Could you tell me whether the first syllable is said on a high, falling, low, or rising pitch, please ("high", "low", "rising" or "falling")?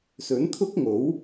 rising